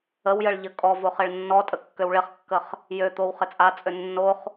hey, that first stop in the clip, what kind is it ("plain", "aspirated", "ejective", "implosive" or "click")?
ejective